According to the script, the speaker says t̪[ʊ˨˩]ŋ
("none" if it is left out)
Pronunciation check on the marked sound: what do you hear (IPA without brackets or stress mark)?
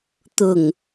ʊ˨˩